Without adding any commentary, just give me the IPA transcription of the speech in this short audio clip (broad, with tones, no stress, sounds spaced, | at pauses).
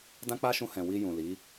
d ã˦ k͡p a˦ ʃ ũ˧ h ɛ̃˨ w i˧ j ũ˨ l i˨˦